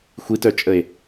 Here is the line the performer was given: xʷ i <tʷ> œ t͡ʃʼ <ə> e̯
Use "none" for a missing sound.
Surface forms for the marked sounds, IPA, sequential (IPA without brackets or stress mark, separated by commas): t, ə